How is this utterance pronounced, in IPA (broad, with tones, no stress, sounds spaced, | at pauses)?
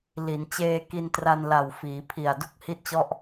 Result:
l i˩˦ n t͡ɕ eː˧ k i˧ n t r a˧ n l a˨˩ w f iː˩˦ pʰ i˨˩ a̯ d u˥˩ k̚ h i˥˩ t̚ t͡ɕ ɔ˥˩ ʔ